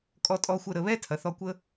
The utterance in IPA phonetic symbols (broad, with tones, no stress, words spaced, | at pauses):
kʼɔ˧tʼɔ˧xʷə˧ ɾə˩ βɛ˥tʰɐ˩ θɔ˧kʷə˥